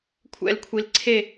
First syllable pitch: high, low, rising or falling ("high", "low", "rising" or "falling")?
falling